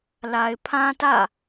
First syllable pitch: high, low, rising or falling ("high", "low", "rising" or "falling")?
low